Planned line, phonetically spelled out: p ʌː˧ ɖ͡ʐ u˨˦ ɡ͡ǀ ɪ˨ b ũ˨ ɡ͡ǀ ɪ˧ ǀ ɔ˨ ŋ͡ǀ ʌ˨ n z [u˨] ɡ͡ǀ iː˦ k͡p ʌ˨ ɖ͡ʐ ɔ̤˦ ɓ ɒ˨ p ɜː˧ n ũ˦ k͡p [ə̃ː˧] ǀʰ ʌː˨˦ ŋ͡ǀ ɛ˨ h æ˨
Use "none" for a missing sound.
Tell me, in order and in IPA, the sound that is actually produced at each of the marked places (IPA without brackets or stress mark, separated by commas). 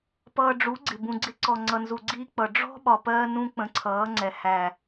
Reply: u˨, ə̃˧